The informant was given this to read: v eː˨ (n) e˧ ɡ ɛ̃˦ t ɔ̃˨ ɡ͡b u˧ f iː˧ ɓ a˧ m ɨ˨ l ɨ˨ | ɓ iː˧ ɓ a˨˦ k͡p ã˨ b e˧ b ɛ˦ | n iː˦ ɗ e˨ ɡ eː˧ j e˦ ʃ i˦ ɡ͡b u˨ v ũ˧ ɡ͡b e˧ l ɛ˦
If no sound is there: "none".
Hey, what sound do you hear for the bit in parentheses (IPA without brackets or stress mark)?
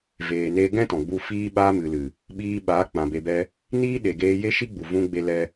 n